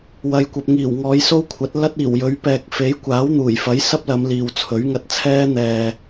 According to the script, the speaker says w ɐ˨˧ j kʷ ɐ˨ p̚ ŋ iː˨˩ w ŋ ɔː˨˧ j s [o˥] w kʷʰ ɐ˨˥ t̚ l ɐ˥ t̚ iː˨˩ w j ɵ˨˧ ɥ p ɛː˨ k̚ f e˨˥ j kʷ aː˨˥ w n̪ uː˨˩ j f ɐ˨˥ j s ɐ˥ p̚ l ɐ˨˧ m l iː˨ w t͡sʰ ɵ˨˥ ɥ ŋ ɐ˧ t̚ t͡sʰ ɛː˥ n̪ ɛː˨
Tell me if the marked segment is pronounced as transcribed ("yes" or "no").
yes